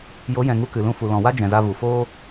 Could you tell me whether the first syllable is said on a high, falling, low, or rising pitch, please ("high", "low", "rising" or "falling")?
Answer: rising